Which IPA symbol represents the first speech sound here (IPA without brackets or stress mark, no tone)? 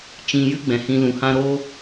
t͡ʃ